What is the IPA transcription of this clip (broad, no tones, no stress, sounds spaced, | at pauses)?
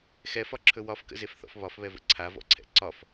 x ɛ f ɒ ǁʰ ɵ w ɒ f k ə̰ z e f θ ɔ̰ f β ɒ f β ɛ v ə̰ ǀʰ a v ɔ̰ ǀʰ ɛ̰ ǀ ɒ f